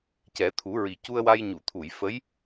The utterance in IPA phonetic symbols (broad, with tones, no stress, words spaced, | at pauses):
cɛ˨˩˦t̪ʰu˨˩˦ɹi˨˩ cu˧ə̯wa˧jɲu˨˩˨t̪ʰu˨˩˨j fə˧˥j